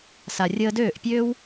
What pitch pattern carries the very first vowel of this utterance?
low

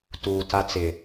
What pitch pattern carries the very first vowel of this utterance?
low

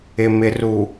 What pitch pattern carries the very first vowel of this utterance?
low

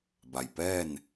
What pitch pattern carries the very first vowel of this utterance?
low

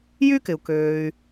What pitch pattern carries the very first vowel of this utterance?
high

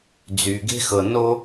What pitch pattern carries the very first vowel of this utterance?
low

